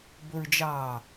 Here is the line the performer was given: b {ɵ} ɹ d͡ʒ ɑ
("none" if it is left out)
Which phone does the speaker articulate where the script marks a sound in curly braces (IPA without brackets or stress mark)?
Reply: ɵ